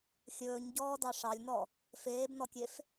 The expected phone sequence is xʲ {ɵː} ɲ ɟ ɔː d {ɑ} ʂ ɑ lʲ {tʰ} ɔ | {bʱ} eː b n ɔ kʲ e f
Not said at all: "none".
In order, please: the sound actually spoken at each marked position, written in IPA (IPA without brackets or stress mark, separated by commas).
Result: ɵː, ɑ, n, f